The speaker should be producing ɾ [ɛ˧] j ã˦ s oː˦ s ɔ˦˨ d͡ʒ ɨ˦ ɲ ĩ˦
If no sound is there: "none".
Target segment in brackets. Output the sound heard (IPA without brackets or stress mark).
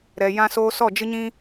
ɛ˨